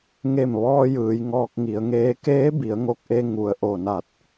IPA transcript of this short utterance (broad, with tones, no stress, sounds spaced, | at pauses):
ŋ e˧˩ m ʋ ɔː˧ j ɯː˩˧ j ŋ ɔː˧ k̚ ŋ i˩˧ ə̯ ŋ eː˧˥ k eː˧˥ b i˩˧ ə̯ ŋ o˧˩ k̚ ʔ e˧ ŋ u˩ ə̯ ʔ o˧˩ n a˧˩ t̚